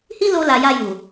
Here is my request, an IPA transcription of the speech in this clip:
h i˦ l o˧ l a˨ j a˧ j u˨

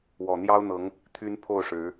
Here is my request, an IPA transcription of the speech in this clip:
w ɔ˨˩ n̪ j ɑ˦ ʊ̯ n̪ ɤ˨˦ ŋ | t̪ʰ y˦ n pʰ o˥˨ ʊ̯ ʂ ɻ̩˨˦

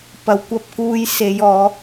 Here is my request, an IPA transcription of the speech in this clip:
p ɐ˨˩ w kʷ ɐ˧ p̚ k uː˧ j s e˨˥ j ɔː˨˥

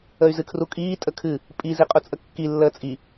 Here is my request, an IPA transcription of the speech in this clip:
ə y̯ z ɨ kʰ r u kʼ iː tʼ ə kʰ ɨ | pʼ i z i qʼ u t͡sʼ ə kː i lː əː t͡sʼ i

